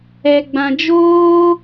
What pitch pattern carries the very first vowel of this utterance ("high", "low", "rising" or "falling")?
low